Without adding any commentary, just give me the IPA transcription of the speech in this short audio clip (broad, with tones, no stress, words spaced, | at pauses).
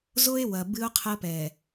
zo˦e̯ wɐ˨ bɨ˦o̯qʰɐ˦pɛ˨